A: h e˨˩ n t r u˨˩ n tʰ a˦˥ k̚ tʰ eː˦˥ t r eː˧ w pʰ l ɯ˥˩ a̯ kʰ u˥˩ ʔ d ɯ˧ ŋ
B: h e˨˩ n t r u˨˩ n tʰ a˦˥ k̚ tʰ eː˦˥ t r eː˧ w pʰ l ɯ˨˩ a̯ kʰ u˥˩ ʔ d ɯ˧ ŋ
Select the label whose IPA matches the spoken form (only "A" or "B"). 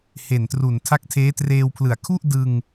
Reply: B